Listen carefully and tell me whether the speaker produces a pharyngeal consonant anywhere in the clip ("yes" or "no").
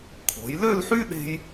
yes